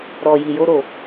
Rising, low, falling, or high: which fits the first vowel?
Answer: low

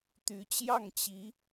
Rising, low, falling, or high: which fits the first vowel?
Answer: rising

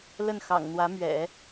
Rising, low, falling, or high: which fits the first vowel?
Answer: falling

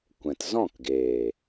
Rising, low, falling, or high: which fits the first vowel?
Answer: low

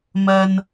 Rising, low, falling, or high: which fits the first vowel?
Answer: low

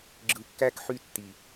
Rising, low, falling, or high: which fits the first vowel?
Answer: low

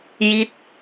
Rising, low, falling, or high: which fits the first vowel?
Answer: falling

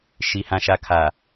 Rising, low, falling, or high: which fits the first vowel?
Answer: low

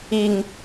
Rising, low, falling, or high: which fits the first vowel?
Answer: low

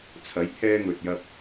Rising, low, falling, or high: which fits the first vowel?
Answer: rising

